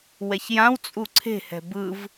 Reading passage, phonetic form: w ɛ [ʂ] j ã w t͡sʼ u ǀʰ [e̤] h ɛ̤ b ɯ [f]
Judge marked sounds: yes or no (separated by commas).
no, yes, no